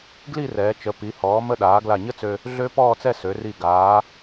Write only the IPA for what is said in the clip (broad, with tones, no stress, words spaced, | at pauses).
ɡli˥˧rɛː˩˧t͡ʃə˩˧ pi˩˧hɔː˩˧mə˧ɗaː˩˧ ɡla˧˩ɲə˥t͡sø˧ | ɮø˧ pɔː˥˧t͡sɛ˥˧ sø˩˧ri˧˩ ɡaː˩˧